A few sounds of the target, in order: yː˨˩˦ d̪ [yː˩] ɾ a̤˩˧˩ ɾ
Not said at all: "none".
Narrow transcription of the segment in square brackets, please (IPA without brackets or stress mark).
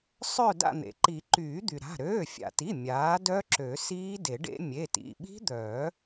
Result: y˩